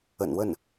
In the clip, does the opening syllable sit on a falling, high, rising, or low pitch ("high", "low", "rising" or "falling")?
low